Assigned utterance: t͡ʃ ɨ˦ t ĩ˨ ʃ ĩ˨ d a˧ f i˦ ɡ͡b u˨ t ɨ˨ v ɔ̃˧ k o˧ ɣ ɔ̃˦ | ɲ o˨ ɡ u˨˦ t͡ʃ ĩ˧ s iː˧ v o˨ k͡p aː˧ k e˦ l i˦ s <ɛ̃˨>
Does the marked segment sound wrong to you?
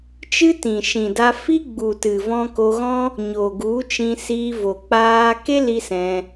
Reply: yes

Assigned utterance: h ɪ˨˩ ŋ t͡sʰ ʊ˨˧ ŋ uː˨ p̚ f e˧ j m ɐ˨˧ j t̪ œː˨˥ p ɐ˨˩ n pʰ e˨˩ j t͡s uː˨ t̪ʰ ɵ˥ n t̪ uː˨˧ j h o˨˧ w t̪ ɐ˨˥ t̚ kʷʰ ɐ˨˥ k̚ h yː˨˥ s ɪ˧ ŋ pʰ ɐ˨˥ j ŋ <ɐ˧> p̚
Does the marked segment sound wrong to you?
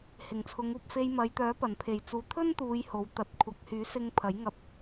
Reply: no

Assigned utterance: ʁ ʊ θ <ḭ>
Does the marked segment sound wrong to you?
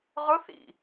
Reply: no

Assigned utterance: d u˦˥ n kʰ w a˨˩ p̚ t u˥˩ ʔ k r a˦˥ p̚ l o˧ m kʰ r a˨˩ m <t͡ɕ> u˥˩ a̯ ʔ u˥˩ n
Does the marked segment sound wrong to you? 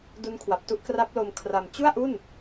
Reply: no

